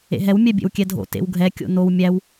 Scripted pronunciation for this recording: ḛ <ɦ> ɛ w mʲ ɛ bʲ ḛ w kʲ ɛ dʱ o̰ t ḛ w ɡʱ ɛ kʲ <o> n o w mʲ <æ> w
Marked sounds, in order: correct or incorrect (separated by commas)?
correct, incorrect, correct